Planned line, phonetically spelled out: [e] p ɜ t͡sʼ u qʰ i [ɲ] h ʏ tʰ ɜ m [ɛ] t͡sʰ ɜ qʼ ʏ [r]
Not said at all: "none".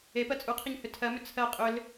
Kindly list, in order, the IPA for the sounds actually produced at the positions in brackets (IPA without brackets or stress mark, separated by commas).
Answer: e, ɲ, ʏ, l